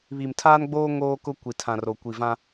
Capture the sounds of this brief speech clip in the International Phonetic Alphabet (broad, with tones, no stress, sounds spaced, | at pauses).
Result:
β i˨ m tʰ aː˦ n ɡ͡b oː˦ ŋ oː˦ k ʊ˦ kʷ i˨ tʰ ã˨ r o˨ kʷ i˨ v ã˦